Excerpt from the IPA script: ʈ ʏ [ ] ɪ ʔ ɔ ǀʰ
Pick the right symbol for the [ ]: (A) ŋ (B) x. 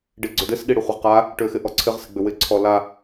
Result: B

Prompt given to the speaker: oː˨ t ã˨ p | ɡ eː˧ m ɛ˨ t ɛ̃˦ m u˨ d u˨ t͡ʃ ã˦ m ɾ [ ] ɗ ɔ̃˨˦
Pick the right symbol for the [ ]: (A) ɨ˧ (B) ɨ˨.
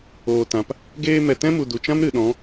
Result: B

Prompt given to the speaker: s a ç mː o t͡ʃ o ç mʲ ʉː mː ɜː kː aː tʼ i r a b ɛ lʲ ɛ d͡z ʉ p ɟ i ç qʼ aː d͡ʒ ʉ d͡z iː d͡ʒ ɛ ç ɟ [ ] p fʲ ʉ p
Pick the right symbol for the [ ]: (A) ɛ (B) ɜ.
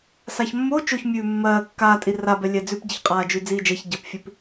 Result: B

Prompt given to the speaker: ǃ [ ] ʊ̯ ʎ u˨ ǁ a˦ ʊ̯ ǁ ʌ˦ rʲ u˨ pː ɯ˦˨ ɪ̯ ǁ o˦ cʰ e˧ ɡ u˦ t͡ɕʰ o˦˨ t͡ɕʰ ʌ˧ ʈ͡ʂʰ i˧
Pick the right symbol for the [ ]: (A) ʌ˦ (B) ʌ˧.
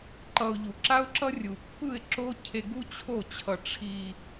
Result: B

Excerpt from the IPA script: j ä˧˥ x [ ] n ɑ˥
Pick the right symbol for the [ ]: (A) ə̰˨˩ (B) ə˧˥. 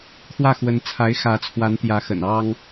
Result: A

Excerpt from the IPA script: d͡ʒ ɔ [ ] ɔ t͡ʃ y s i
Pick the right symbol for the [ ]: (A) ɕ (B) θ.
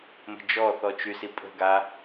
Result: B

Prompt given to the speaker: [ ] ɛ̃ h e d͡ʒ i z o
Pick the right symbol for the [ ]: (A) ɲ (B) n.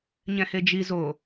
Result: A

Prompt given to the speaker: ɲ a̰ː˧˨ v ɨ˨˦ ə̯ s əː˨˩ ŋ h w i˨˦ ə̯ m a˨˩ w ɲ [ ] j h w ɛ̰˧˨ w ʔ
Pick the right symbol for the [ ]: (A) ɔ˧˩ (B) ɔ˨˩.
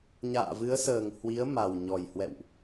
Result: B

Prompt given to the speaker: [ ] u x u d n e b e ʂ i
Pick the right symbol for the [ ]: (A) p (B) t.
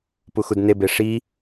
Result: A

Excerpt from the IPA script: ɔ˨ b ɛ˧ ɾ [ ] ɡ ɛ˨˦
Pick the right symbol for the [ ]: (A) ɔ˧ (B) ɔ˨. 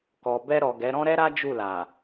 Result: B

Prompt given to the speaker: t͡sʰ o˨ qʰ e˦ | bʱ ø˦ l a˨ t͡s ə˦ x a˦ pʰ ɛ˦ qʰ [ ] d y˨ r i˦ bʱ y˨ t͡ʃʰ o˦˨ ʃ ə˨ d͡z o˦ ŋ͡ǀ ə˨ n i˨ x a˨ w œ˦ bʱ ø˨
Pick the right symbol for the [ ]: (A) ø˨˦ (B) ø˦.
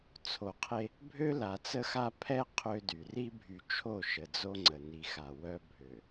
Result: B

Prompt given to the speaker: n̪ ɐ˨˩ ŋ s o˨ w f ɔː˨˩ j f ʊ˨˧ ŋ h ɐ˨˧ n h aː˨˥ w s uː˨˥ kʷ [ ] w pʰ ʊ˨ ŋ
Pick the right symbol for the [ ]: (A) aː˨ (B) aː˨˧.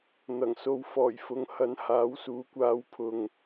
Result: B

